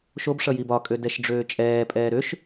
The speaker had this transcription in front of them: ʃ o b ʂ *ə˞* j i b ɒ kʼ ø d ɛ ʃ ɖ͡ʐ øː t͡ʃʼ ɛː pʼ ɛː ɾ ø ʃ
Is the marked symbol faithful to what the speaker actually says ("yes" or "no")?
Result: no